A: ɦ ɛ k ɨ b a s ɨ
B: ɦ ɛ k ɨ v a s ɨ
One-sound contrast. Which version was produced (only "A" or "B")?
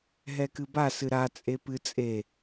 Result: A